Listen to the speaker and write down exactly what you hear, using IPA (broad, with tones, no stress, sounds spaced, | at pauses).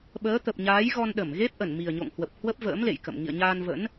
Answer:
ɓ əː˨˦ t̪ ə˨˩ p̚ ɲ aː˨˦ j ɣ ɔ˧ n ɗ ə˧˩ m ɣ e˦˥ p̚ ʔ ə˧˩ n m i˨˩ ə̯ ɲ o̰˧˨ ŋ h w ə˨˩ p̚ h w ə˦˥ p̚ v ə̰ː˧˥ m l ḛ˧˨ j k ə̰˧˨ m ŋ ḭ˧˨ ə̯ ɲ aː˧ n v ə̰˧˥ n